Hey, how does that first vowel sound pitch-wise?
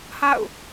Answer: falling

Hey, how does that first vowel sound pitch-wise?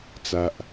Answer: low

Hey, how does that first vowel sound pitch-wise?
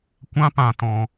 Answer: high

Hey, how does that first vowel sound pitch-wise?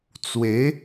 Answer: rising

